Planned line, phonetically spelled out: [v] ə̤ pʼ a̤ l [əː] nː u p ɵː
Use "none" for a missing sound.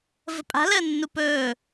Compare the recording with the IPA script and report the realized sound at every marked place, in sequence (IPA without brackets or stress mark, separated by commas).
v, əː